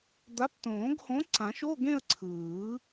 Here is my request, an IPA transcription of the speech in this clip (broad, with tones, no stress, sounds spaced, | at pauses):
d̪ a˨˥ p t õː˨˩˦ ɡ h õ˨˥ ǀ ã˨˩˦ ʃ o˧˥˧ ɡ ẽ˥˧ ə̯ ǀʰ ɯː˨˩˦